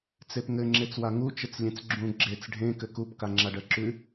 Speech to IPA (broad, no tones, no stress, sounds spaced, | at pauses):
t͡s e p ŋ ɘ ŋ͡ǁ e t͡s w a ŋ u t͡ʃ ɘ t͡s lʲ ẽ t͡s ɡ͡ǁ ũ ɡ͡ǁ e t͡s ɖʱ ẽ k ɘ k u p k a ŋ͡ǁ a ɖ ɜ ǁ ʉ